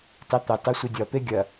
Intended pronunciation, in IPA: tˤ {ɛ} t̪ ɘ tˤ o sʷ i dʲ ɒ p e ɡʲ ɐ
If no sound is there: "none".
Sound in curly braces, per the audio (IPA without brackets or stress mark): e